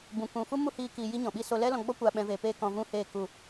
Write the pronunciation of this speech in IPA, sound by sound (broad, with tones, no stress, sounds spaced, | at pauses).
b ũ˨ k ũ˨ f u˦ m u˦ h iː˧ k iː˧ j i˦ ɲ ɔ̃˨ ɓ i˦ s o˧ l ɛ˦ l ɔ̃˧ ɡ͡b ɔ˦ kʷ a˧ ɓ ɛ̃˧ v e˧ p eː˦ k ɔ̃˧ v ũ˦ h eː˦˨ k u˦˨